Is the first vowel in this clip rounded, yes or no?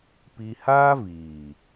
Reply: no